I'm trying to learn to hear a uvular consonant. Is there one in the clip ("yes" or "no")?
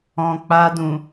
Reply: no